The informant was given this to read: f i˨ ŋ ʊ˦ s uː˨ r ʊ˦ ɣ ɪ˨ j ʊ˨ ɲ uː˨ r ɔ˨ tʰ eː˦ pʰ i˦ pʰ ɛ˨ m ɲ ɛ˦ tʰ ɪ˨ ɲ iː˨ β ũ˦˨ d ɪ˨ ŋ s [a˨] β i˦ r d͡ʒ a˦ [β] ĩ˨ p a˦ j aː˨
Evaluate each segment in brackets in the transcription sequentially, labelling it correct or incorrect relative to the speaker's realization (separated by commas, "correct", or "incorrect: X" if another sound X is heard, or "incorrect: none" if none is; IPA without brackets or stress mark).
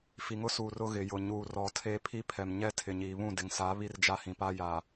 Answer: incorrect: a˨˦, incorrect: h